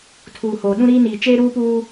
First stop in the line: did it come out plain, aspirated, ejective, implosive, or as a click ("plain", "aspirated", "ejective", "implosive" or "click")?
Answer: aspirated